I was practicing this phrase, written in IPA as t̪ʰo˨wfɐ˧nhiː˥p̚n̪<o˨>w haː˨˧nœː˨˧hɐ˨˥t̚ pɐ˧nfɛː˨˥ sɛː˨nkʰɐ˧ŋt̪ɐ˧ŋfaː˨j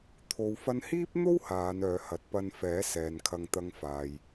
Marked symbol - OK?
no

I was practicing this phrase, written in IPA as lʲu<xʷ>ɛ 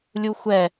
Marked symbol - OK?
yes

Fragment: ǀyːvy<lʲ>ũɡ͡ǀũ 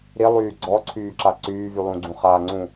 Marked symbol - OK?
no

